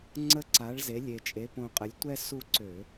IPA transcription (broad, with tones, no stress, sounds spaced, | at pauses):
ŋ͡ǀ ə˦˨ ǀ a˩˥ ɭ z e˩˥ lʲ e˨˩ t͡ʃʼ e˩˥ p õ˨˩ qʼ ə˩˧ lʲ tʷ ɛ˦ s u˦˨ ǀ ø˧˩˧